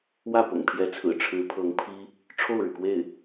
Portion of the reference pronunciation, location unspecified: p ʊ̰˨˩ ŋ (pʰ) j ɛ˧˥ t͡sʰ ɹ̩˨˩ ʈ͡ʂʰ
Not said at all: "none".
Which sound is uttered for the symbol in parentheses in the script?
pʰ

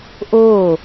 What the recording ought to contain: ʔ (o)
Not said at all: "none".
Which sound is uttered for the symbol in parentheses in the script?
o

